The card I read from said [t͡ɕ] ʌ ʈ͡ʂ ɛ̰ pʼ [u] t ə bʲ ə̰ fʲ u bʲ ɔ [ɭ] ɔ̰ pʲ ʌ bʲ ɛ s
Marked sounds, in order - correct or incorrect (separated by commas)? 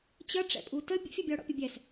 correct, correct, incorrect